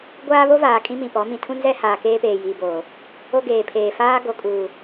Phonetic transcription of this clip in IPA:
ɡʷ aː˦ β o˦ v aː˨ kʼ ĩ˦ m ĩ˨ p ɔ˨˦ m ĩ˨ tʰ ũ˦ n z ɛ˦ h aː˨ k eː˦ p eː˨ j iː˨ b oː˨ | o˦ ɡ eː˨ pʰ eː˨ f aː˦ ɡ o˨ kʼ uː˨

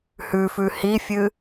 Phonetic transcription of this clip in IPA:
h ʉ f ʉ h i fʲ ɨ

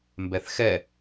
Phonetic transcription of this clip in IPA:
m b ɛ θ x ɛ

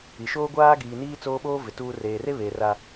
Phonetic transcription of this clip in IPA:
i˨ ʃ oː˦ ɡʷ aː˦ ɡ iː˨ n iː˦ t͡s oː˦ ɓ oː˦ v ɪ˨ t uː˦ r eː˨ r e˦ β eː˨ r a˦

